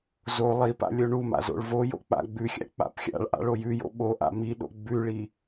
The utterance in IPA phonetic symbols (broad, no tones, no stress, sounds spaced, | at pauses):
z o lˠ i p a̰ lʲ o ɳ u m a̰ z o̰ ɭ v o j o̰ k͡p a̰ ɡ͡b ʉ xʲ a̰ k͡p a̰ p xʲ a̰ ɭ ʔ a̰ ɭ o j ʉ j o̰ ɓ o ʔ a̰ m i ɗ o̰ ɡ͡b ʉ ɭ i